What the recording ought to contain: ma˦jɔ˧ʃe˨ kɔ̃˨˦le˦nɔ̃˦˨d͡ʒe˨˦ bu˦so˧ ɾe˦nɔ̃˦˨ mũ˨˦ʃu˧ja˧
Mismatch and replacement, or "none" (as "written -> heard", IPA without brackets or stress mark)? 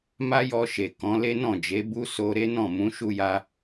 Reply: none